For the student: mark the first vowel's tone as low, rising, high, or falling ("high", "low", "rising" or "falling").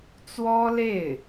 high